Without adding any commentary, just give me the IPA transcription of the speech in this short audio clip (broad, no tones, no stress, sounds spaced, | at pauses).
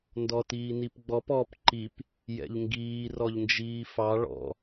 n d ɔ t iː n i p ɡ͡b ɔ p ɔ p ǃ i p | j ɛ̰ ʎ ŋ ɡ iː r ɔ ʎ n d͡ʒ iː f ɑ ɭ ɔ̰